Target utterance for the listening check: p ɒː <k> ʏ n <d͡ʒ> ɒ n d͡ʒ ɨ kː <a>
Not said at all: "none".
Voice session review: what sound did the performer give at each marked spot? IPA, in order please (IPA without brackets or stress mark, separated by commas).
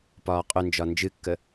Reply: qʼ, d͡ʒ, ə